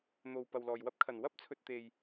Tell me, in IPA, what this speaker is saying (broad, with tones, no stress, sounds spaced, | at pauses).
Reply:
n̪ o˨ w p ɐ˨ w l ɔː˨ j w ɐ˥ p̚ kʰ ɐ˨ n w ɐ˥ p̚ t͡sʰ ɵ˨ t̚ t̪ e˨ j